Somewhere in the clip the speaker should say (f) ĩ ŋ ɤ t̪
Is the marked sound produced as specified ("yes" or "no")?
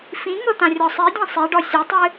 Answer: yes